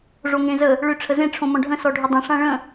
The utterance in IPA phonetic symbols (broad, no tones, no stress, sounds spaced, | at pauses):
ʐ o ŋ ẽ z ə | ɭ ʏ ʈ͡ʂʰ ə z ẽ ʈ͡ʂʰ õ m ɔ̃ ɖʱ ə̃ s ɔ ɖʱ ʏ dˤ ə̃ ʂ ã ɭ ə̃